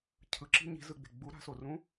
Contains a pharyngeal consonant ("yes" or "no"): no